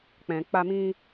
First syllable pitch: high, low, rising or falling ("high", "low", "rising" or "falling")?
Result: low